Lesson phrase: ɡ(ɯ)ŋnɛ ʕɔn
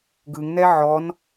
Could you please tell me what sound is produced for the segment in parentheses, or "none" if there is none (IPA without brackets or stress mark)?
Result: ɯ